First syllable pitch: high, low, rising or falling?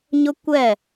high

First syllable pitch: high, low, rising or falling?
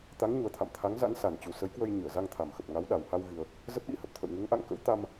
rising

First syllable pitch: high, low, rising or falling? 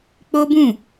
high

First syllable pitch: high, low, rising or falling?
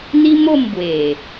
high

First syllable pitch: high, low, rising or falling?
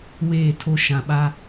falling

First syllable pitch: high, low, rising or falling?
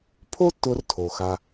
high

